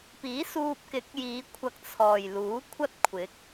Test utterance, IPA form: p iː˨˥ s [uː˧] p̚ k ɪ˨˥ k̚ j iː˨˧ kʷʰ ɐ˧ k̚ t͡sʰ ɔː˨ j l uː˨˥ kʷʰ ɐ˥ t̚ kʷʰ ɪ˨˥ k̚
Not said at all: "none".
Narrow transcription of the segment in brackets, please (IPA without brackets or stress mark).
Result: uː˧